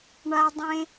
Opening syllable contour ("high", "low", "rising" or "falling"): high